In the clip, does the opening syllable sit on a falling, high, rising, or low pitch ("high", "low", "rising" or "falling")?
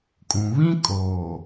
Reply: low